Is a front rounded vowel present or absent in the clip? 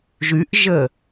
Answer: present